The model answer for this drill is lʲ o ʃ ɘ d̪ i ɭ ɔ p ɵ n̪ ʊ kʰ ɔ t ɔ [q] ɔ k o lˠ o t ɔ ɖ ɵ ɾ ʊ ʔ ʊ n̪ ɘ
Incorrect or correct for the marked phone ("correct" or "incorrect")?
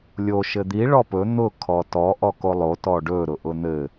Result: incorrect